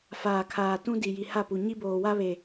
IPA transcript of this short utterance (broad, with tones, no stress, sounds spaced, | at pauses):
f aː˨ kʰ aː˨ t ũ˦ d i˨ j i˨ h a˦˨ p u˨ ɲ i˦ b oː˨ w a˦ β e˨